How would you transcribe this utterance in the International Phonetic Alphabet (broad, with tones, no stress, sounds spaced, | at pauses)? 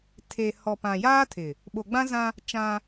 tʰ e˨ h ɔ˨ p ã˨ j aː˦ tʰ ɪ˨ | ɓ o˨ ɡ͡b ã˦ z ã˦ | t͡ʃ ã˦